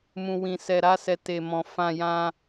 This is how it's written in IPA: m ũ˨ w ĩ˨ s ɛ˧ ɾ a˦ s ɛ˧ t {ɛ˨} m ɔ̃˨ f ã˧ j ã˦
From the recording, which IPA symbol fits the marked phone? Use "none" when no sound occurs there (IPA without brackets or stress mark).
e˨